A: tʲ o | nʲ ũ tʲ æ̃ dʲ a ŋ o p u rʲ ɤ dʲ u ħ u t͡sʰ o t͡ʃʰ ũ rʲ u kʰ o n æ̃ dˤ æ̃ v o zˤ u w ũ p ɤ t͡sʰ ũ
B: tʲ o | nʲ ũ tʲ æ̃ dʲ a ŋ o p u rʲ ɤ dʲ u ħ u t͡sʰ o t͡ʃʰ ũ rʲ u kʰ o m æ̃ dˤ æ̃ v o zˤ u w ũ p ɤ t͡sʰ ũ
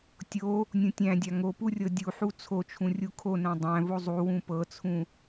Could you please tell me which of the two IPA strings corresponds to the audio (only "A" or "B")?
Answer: A